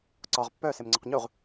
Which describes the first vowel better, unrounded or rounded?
rounded